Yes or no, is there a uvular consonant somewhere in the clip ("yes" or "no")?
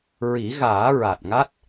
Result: no